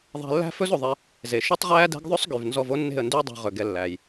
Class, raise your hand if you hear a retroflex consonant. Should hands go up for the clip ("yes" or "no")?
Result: no